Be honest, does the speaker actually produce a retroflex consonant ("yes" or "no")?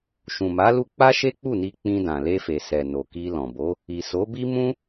no